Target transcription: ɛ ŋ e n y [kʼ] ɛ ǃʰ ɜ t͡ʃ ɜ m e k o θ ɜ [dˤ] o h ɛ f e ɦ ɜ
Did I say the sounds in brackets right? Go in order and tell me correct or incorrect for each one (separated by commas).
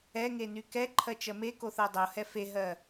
incorrect, correct